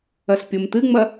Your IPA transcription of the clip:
ɐ ɬ pʲ o m t ɨ ŋ͡m ɐ

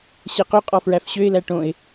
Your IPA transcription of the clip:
ɕ ɛ q ø qʼ ɔ f ɹ æ f ɕ ø ɪ̯ l æ ʈ õ ɪ̯

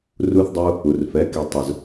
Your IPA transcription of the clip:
r u˦ θ dˤ u˦ | u˨ r f ɛ˨˦ k i˧ tˤ ʊ˧ z

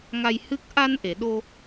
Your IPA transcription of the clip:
ŋ a˧ j h ɨ˦˥ k̚ ʔ a˧ n ʔ e˨˩˨ ɗ o˧

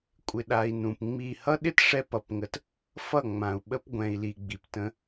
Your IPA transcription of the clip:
kʷʼ ɪ˨ ɗ a˨ i̯ n ũ˨ p ŋ͡m i˦˨ h ʌ˦ ɗ ɪ˦ t ʂ ɛ˦ p ʌ˨ p ŋ ə˨ t | f ʌ˦˨ ŋ͡m ã˨ u̯ ɓ ə˦ p ɡʷ ɛ̃˨ i̯ l i˨ ɡ͡b i˨ p t ə̃˦

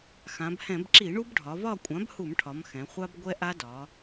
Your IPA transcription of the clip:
x ã˩˧ b h ɛ̃˧˩˧ b ǁ i˧˩˧ ɳ u˦ b ɖʱ ɒ˩˧ v ɒ˦˨ kʷʼ ã˩˥ b h u˧˩˧ m ʈʰ ɒ˩˧ m x ɛ̃˩˧ χʷ a˦ b ɡʷ ɛ˦ ʔ a˦ d ɒ˩˧

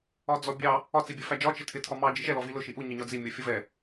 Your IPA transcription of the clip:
ɒ d͡z ɔ bʲ ɑ | ɒ t͡s i bʲ ɜ f æ d͡ʒ ɒ t͡ʃ ɪ tʰ ɪ tʰ ɒ m ɑ d͡ʒ i ʃ ɛ l ɔ v i l ʊ ʃ i ʔ u ɲ ə ɲ ɒ d͡z i mʲ ɔ fʲ ʌ v ɛ

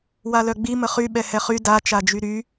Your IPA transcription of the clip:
w a l œ ɡ͡b i m ə χ y ɓ ɛ h ɛ χ y d a t͡ʃ a d͡ʒ y ɾ y

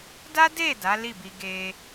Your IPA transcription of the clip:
d a˦ d e˦˨ d a˨˦ l i˦˨ b i˧ ɡ e˧

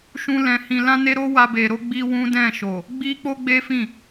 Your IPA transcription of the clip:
ʃ ũ˦ l ɛ̃˧ h ĩ˧ l ã˦ n e˦ ɾ o˦ w a˧ b e˧ ɾ o˦ ɡ͡b i˦ w ũ˦ d ɛ̃˦˨ ʃ o˨ | ɡ͡b i˦ k͡p o˦ ɡ͡b e˦ f ĩ˦˨

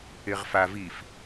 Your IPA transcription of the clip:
ɪ ʁ f a v i f

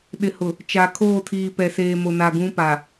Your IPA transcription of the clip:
ɗ ɪ˨ h ʊ˨ | t͡ʃ a˨ kʰ oː˦˨ tʰ iː˨ p ɛ˨ s eː˨ m o˨ n a˨ ɡ ũ˨˦ p a˨

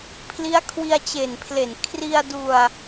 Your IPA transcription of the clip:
pʰ l i˦˥ a̯ kʰ w i˧ a̯ t͡ɕ e˨˩ n pʰ l e˨˩ n kʰ r i˧ a̯ d u˧ a̯

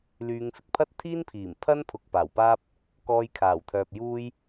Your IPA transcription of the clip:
l yː˨˧ ŋ f ɪ˨ k̚ pʰ ɐ˥ t̚ t̪ʰ iː˥ n pʰ iː˨˩ m pʰ ɐ˥ n pʰ ʊ˨ k̚ p aː˨˩ w p aː˥ p̚ | k ɔː˧ j kʰ aː˨˩ w t̪ʰ œː˨ p̚ j uː˥ j

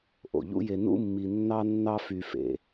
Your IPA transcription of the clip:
ʔ o̰˩ ʎ ṵ˥ j e˧ n ṵ˥ mː i˧ nː ɑ˥ nː ɑ˥ f y˧ f ḛ˩

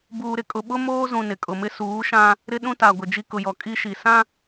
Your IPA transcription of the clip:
b uː˨ ɾ ɪ˨ kʼ ʊ˨ ɓ ʊ˦ m oː˦ z ũ˨ n ɪ˨ kʼ ʊ˨ m ɪ˦ s uː˨˦ ʃ ã˦ | ɾ ɪ˦ ɗ ũ˦ t a˨ ɡʷ ɪ˨ d͡ʒ i˦ k ʊ˨ j ɔ˨ kʼ i˦ ʃ i˨ s ã˦

